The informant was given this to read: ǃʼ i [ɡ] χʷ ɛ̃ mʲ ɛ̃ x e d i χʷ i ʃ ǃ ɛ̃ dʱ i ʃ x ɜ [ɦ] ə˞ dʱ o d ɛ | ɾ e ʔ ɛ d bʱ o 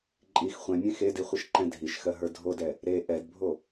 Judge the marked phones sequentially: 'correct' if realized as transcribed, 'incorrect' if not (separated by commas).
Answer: incorrect, correct